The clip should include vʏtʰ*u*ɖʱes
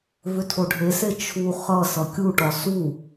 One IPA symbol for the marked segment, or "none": o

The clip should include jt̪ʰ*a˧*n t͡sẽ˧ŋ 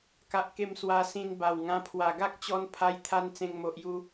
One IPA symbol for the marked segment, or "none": a˧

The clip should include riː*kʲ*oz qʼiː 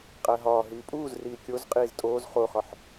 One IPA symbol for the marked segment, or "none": kʲ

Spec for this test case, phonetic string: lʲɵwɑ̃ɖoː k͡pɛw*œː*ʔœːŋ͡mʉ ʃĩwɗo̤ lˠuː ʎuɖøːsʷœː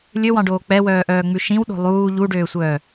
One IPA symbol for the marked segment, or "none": œː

